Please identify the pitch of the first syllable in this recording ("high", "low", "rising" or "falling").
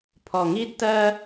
low